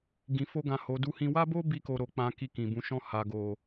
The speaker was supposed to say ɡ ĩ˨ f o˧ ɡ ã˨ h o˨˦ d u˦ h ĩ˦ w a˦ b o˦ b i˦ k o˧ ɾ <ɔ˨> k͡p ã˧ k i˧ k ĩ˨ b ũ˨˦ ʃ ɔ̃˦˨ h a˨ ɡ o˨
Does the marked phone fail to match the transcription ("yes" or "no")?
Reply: yes